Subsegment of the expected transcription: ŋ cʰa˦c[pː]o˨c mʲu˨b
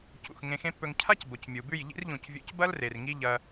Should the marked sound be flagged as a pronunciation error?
yes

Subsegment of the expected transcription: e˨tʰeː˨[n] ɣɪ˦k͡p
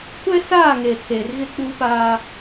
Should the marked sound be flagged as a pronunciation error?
yes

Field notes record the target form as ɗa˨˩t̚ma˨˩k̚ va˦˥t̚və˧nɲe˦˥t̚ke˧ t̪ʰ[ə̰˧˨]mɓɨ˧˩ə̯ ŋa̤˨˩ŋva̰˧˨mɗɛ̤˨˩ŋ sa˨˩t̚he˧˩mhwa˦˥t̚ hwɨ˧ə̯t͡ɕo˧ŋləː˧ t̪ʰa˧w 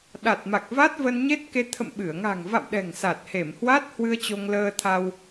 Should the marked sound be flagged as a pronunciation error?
no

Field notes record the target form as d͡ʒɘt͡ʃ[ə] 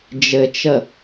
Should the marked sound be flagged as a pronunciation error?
no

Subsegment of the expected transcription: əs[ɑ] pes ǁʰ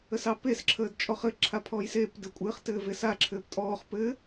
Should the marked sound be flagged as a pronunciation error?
no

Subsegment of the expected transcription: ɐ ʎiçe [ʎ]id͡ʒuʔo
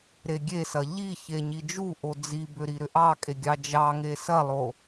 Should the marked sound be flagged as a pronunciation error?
yes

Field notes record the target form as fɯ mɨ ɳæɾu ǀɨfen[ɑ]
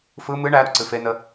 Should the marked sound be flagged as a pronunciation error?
yes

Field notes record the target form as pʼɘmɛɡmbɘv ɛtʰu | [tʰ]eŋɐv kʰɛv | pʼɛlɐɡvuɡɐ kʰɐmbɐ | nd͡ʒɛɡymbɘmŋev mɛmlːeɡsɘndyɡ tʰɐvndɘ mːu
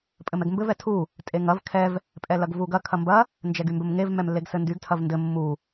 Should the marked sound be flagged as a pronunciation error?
yes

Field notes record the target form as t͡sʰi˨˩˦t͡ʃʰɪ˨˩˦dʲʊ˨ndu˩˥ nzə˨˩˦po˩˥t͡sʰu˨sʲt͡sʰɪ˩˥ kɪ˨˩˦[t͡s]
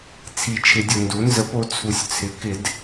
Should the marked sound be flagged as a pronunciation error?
yes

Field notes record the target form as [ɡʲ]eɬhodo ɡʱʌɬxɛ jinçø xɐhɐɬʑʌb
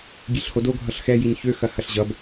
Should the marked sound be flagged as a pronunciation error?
no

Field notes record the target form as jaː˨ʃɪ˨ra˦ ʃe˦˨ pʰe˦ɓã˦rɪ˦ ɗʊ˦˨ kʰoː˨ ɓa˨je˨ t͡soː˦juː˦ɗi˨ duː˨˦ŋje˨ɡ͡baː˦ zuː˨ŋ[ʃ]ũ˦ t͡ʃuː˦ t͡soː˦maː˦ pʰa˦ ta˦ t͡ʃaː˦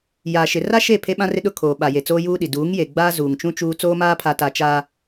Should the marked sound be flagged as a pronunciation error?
yes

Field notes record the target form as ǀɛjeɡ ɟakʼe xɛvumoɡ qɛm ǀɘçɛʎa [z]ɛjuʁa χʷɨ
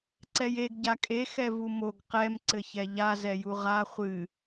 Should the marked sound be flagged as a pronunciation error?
no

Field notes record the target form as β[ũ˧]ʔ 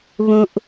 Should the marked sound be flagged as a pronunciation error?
no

